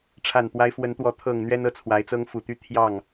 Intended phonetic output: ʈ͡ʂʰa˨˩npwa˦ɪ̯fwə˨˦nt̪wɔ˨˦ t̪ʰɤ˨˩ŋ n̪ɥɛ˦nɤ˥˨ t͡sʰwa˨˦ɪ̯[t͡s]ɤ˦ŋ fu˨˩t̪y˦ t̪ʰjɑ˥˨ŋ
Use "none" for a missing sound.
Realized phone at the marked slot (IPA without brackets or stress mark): t͡s